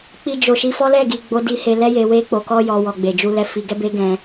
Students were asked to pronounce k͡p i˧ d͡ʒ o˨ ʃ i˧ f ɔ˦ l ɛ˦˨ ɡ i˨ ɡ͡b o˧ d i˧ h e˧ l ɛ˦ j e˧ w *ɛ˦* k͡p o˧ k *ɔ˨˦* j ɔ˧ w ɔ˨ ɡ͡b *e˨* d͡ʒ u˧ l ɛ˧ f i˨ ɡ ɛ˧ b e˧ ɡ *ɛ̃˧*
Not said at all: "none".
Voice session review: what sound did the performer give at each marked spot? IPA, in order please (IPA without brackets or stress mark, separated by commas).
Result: e˦, ɔ˦, e˨, ɛ̃˦